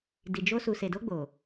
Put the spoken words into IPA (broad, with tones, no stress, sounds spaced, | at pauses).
d i˨ d͡ʒ o˧ s u˨ s e˨ d o˧ ɡ͡b o˨